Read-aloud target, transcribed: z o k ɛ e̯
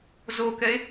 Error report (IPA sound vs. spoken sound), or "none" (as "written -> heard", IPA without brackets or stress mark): none